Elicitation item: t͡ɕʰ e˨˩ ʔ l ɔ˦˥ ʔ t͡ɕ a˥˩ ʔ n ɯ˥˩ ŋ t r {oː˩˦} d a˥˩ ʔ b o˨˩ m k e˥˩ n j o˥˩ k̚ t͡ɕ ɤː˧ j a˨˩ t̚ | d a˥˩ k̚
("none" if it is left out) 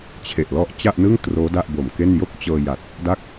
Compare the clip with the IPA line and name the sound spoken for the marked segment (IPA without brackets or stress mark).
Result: oː˦˥